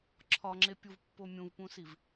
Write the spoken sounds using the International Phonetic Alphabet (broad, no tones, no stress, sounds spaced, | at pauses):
ǁʰ ɒ ŋ͡ǁ e pʲ u v pː o mʲ ũ v p ũ s i v